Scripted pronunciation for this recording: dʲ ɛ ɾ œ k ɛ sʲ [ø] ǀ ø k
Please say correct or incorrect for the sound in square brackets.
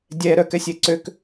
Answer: incorrect